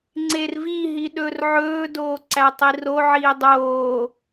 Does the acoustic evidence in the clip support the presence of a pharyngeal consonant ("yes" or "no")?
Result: yes